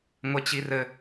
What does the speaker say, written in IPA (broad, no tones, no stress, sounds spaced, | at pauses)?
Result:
ŋʷ e t͡ɕ i r ɘ